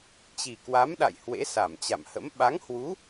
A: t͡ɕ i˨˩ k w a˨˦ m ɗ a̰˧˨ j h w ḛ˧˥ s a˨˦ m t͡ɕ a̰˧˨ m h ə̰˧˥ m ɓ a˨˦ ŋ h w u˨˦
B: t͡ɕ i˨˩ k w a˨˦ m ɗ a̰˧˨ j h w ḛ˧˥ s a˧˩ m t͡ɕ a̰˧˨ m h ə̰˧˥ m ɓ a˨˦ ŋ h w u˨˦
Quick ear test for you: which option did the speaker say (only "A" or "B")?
B